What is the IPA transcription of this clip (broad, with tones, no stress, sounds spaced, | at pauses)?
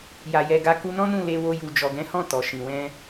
j a˨ j ɛ˨ ɡ a˨˦ k u˧ n ɔ̃˦ n ũ˦˨ l e˧ w o˧ j u˨ d͡ʒ ɔ˨ ɡ ɛ̃˨˦ h ɔ̃˦˨ t ɔ˨ ʃ ĩ˨ w ɛ̃˧